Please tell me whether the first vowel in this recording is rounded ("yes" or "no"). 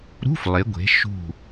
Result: yes